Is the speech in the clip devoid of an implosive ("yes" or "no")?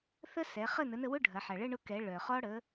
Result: yes